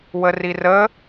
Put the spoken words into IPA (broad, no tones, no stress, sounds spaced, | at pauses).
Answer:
w ə r i r ə